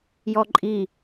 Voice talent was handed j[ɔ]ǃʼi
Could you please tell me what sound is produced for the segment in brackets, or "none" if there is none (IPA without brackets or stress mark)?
ɔ